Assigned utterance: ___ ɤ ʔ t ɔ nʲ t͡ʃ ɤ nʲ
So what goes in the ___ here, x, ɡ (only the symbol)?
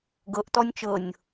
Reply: ɡ